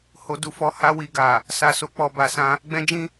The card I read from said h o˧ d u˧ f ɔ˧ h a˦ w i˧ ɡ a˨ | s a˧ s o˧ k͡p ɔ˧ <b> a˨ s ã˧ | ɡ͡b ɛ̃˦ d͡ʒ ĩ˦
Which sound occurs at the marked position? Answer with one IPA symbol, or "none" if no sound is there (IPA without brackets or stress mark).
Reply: b